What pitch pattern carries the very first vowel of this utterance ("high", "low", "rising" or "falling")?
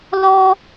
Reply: high